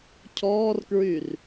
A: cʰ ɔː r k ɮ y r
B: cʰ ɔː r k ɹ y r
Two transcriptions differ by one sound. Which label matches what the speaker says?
B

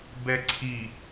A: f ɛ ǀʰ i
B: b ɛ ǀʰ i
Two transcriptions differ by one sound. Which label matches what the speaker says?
B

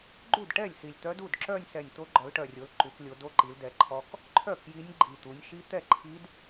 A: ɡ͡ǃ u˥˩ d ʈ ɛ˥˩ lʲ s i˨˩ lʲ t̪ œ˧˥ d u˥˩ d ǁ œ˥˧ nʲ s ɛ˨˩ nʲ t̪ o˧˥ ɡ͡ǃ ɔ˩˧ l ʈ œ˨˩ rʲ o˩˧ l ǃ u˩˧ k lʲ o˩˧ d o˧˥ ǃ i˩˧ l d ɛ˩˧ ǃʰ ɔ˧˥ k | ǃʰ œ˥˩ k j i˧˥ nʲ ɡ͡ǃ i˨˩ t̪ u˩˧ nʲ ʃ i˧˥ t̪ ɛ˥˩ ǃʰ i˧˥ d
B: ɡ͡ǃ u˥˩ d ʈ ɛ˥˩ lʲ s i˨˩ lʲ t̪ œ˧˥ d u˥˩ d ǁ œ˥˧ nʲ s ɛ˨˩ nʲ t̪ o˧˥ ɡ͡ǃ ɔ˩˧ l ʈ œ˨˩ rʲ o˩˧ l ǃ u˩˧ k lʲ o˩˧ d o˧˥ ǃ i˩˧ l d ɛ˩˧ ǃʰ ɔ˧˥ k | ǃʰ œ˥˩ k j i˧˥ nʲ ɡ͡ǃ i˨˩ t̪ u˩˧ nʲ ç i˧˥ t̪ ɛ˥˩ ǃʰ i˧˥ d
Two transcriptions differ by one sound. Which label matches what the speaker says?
A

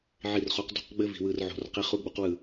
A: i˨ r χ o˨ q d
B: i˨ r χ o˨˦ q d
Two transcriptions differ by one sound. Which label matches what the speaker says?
B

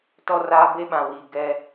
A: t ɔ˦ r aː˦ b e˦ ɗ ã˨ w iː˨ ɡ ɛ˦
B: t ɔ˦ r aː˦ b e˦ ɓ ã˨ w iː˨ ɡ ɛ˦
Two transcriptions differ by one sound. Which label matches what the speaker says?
B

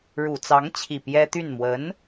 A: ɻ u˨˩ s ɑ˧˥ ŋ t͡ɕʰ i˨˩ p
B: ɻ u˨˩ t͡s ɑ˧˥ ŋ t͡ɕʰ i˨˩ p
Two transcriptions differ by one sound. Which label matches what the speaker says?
B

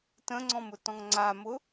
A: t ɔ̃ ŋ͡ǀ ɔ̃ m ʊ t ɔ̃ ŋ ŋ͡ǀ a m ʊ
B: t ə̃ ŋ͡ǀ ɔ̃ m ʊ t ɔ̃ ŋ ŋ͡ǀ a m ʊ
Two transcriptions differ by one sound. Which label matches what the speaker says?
B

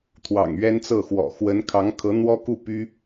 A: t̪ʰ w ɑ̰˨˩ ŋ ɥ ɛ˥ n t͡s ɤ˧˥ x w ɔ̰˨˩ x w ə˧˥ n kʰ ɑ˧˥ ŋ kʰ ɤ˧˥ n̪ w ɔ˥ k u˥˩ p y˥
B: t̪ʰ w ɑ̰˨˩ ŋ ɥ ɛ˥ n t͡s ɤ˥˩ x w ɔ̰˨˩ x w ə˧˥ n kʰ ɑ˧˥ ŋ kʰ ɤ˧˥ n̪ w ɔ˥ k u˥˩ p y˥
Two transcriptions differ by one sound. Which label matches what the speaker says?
B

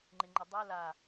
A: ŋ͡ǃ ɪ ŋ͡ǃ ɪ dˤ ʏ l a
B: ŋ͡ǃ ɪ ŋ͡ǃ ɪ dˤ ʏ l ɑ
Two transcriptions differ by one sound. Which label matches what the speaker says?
A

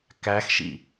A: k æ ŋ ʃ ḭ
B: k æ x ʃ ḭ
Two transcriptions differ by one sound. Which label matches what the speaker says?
B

